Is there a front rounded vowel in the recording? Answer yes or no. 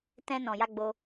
no